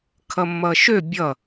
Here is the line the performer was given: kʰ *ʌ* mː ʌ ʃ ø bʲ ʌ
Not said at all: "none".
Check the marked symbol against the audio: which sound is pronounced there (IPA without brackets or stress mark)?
ʌ